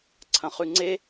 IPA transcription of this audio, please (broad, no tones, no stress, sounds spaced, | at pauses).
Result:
ǀʰ ɐ̃ χ ʉ ŋ͡ǀ e